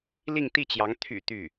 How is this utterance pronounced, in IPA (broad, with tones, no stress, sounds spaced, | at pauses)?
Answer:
l i˥˧ ŋ t̪ i˥˩ t͡ɕ j ɑ˧˥ ŋ t̪ʰ y̰˨˩ t̪ y˥˩